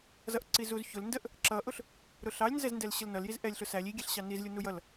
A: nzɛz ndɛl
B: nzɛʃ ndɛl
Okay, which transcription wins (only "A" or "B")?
A